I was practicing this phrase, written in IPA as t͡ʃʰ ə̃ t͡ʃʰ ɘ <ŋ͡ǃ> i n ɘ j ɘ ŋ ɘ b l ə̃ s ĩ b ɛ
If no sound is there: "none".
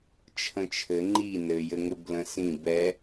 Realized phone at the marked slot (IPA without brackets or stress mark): ŋ͡ǃ